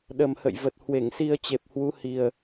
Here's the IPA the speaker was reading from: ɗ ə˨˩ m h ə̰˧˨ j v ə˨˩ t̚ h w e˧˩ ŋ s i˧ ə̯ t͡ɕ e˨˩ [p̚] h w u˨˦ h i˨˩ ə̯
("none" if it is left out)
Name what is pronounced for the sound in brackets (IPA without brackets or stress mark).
p̚